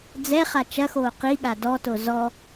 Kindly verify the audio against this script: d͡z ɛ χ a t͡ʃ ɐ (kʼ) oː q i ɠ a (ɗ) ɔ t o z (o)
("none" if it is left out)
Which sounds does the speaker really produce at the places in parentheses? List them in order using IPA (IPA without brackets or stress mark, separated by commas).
x, d, ɔ